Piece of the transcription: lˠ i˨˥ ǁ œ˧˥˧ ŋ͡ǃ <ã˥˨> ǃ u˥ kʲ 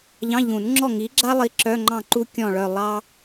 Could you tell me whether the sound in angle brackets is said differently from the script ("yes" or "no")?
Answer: yes